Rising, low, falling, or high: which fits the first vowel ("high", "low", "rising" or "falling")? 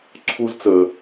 high